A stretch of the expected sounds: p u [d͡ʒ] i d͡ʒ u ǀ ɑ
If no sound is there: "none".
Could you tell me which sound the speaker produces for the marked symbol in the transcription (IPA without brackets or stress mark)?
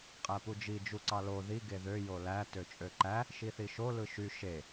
d͡ʒ